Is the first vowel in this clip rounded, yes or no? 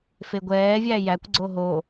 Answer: no